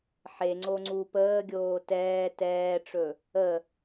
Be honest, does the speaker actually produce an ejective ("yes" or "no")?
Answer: no